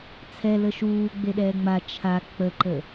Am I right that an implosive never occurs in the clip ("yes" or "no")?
no